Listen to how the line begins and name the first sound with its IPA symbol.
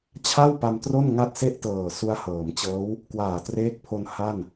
t͡ɕʰ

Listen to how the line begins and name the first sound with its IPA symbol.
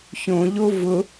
ç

